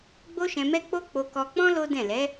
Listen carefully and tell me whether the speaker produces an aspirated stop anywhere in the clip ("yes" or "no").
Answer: no